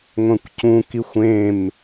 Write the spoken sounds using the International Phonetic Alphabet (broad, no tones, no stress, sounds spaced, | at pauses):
ŋʷ ɛ̃ kʷ c ũ k i xʷ ẽ m